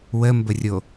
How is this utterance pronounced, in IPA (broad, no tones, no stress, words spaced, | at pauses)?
wəmbərʲo